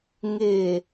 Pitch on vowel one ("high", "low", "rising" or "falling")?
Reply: low